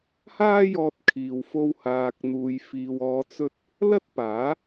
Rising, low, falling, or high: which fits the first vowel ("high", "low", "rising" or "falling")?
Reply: high